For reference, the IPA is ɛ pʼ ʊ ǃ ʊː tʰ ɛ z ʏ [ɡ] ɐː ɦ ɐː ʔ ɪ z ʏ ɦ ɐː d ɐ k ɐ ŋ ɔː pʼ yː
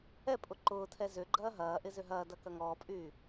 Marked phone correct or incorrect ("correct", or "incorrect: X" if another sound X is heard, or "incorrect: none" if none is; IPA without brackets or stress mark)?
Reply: incorrect: ɡ͡ǃ